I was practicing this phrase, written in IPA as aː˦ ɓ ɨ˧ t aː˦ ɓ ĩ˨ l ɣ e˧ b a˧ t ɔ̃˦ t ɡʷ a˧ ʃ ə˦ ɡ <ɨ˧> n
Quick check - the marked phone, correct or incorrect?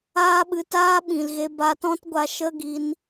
incorrect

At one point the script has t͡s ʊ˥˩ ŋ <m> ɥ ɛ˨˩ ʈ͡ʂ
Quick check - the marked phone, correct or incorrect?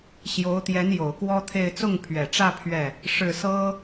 incorrect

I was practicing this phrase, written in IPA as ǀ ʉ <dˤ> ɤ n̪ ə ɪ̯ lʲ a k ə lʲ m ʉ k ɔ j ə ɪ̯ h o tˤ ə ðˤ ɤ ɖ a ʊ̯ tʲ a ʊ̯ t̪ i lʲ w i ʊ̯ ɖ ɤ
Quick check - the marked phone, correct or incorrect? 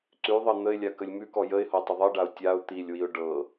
incorrect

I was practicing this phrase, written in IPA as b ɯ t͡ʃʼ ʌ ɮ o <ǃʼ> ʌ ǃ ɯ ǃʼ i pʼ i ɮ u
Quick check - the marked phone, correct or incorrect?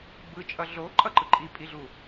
correct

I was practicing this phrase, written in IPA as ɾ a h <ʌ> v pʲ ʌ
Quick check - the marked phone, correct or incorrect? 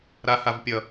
incorrect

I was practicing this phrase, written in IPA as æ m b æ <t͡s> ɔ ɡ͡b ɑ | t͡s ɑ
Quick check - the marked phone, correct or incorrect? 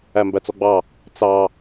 correct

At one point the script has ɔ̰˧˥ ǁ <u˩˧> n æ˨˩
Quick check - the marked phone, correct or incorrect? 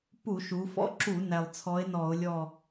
incorrect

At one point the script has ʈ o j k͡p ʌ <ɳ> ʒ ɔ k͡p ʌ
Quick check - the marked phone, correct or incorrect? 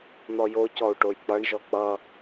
correct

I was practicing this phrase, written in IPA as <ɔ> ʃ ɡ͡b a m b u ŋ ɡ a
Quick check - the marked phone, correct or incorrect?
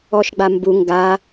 correct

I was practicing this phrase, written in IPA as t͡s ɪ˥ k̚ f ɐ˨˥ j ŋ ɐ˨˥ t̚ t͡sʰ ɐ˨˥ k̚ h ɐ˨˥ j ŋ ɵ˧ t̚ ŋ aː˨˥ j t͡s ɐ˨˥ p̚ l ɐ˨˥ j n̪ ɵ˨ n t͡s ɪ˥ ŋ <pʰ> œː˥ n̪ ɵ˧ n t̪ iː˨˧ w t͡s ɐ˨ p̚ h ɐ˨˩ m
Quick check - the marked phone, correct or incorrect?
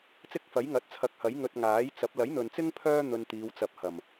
correct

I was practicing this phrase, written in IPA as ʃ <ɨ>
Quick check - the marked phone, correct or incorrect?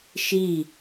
incorrect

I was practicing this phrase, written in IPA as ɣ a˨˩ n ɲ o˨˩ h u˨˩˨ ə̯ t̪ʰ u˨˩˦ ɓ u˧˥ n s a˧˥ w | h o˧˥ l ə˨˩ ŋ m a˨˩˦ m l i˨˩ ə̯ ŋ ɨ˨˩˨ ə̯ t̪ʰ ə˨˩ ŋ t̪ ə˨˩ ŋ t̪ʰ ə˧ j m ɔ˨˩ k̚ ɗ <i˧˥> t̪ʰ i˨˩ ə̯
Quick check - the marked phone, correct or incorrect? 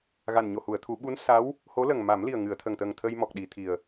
incorrect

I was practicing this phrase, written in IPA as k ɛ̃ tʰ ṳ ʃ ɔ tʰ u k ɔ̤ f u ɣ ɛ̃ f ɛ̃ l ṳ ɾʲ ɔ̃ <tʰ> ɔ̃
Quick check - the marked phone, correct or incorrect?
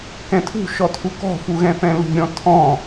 correct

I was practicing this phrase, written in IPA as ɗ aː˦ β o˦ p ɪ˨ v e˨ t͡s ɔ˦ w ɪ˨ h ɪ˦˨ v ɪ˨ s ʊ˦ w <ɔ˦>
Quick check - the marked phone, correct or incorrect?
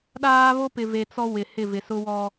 correct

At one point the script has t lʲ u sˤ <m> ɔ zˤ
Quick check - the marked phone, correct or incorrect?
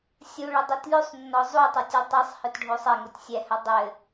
incorrect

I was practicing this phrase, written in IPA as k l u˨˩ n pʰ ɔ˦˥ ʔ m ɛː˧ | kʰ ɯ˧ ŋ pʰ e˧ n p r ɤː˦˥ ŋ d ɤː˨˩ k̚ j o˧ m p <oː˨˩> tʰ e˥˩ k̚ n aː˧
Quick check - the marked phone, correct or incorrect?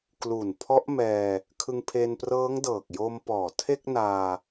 incorrect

